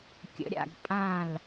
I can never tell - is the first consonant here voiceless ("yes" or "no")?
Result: yes